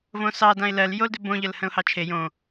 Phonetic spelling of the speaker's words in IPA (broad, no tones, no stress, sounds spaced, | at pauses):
v õ s ɑ d ã ɪ̯ l ɜ l j o l d ʏ b õ ʎ ə l h ə̃ ʊ̯ h ɑ t͡ʃʰ e j õ